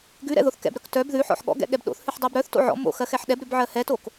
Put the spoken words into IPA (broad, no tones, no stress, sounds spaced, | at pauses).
ɡ ʉ ɾ ɛ̰ ð o θ k ɛ̰ b ɾ œ k t œ b ð ʉ ħ ɔ̰ ħ ɠ ɔ̰ ɡ ɛ̰ ɠ ɛ b ɗ o̰ θ h ʉ ħ dˤ ɛ b ɾ œ θ t o̰ ʕ ɔ̰ m o̰ x ɜ x ɛ ħ ɗ ɛ b ɾ ʉ b ʕ ɜ h ɛ t o k